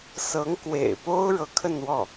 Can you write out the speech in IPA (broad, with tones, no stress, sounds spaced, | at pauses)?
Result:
s ɤ˧˥ ŋ k w ḛ˨˩ ɪ̯ p o˥ ʊ̯ ɻ ɤ˧˥ kʰ ə˥˧ n w ɔ˥˩